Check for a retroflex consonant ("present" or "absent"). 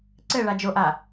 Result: present